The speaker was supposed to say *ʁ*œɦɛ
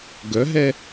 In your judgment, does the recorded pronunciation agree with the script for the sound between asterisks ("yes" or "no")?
no